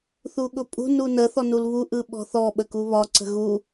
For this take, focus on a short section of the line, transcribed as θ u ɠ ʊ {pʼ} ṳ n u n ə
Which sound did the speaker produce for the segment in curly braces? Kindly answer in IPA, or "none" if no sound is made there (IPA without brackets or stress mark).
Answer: pʼ